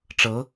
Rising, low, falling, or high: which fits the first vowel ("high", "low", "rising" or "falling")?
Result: rising